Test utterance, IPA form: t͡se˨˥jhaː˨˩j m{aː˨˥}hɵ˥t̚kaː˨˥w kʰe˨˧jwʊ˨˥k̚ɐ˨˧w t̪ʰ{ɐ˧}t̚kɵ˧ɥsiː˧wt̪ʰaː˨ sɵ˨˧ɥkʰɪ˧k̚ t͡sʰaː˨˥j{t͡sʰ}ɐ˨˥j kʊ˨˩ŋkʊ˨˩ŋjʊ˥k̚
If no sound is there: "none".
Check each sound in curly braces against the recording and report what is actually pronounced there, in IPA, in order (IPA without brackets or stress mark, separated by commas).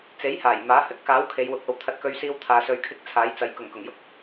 aː˨˥, ɐ˧, t͡s